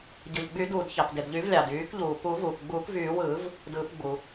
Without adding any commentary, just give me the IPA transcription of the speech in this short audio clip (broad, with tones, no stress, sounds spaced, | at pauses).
ɟ ɯ˩ ʎ ɡ͡b y˨˩˦ d uː˩ d ç ɑ˩ p d e˩ d ʎ y˨˩˦ v lʲ ɑ˩ d yː˨˩˦ k ʎ uː˩ p u˨˩˦ v uː˩ k ɡ͡b uː˨˩˦ k v yː˨˩˦ w ɯː˨˩˦ v | d ɯː˨˩˦ p ɡ͡b u˩